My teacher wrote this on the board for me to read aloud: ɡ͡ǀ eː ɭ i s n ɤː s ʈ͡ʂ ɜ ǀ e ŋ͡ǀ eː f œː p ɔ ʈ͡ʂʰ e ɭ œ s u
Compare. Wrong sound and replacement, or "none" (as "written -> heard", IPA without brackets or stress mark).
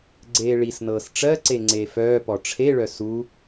none